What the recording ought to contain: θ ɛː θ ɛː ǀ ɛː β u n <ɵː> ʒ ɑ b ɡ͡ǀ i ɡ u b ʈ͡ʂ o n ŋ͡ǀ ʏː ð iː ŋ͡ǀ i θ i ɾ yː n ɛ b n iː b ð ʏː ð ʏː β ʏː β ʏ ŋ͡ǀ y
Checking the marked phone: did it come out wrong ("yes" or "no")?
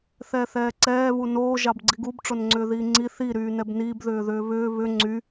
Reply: yes